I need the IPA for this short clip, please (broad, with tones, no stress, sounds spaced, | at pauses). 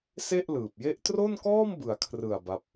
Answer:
s e˥˩ ʔ l ɯː˨˩ p̚ j e˥˩ ʔ t r o˥˩ n k ɔː˥˩ m b ɯ˩˦ a̯ kʰ r ɯ˨˩ a̯ b a˥˩ p̚